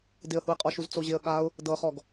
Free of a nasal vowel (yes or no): yes